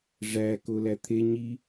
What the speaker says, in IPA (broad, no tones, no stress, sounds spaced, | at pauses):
ʐ æ k o l æ t̪ʰ e ɲ i